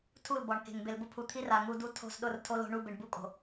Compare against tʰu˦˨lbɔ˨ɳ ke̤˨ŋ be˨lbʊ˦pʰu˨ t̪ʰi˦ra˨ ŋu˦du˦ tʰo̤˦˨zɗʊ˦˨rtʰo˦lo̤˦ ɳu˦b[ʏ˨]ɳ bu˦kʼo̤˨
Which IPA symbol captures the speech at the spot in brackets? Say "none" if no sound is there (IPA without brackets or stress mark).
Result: ɪ˨